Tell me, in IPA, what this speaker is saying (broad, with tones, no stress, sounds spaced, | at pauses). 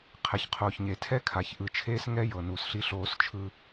qʰ ɛ˨ ç qʰ oː˨ ç ɲ e˨ tʰ ɛ˦ kʰ a˨ ç ʔ ɯ˨ t͡ʃʰ eː˦ s ŋ ɛ˦ j ɤ˨ n u˨ s ɬ i˦ ɬ oː˦ s t͡ʃʰ ɯ˦